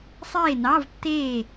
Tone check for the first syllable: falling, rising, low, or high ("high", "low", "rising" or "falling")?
falling